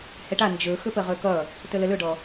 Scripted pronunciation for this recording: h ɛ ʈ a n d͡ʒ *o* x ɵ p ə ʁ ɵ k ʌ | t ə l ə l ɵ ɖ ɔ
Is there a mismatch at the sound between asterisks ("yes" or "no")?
yes